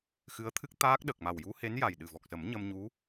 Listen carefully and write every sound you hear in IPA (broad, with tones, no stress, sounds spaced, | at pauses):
x ɨ˧˥ ə̯ t̪ʰ ɨ˦˥ k̚ t̪ aː˦˥ k̚ ɗ ə˨˩ k̚ m a˨˩ w j u˧˥ h e˧˥ n j a˨˩ j ɗ ɨ˨˩ v ɔ˨˩ k̚ s ə˨˩˦ m ɲ ə˧ m ɲ u˧˥